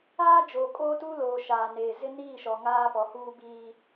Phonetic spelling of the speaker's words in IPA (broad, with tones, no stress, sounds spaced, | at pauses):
aː˦ d͡ʒ oː˨ kʼ oː˦ t u˦ l oː˨ ʃ aː˨ n eː˨ z ɪ˦ n iː˦˨ ʃ ɔ˨ ŋ aː˦ p ɔ˨ h uː˦ b iː˦